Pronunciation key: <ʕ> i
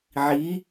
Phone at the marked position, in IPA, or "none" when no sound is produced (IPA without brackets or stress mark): ʕ